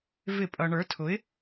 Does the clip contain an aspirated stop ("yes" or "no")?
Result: yes